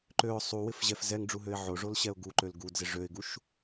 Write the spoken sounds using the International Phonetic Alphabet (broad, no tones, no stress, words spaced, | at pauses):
ǃøʊ̯ sˤuwɪfʑɛf zɛŋɖ͡ʐuɦøɪ̯ ʕoʐolɕɛʊ̯ ɡuǃøl ɡudzɪ ʐøɪ̯ɡuʃ